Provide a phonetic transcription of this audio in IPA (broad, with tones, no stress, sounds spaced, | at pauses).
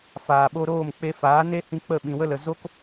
f aː˨ ɓ o˧ ɾ oː˦˨ m k͡p e˧ f aː˨˦ n e˦ h ĩ˧ k͡p ə˦˨ ɓ ĩ˨ w ə˦ l ə˨ z o˦ k